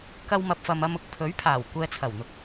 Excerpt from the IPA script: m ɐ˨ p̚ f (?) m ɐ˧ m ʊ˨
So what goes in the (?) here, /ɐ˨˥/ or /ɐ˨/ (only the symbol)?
ɐ˨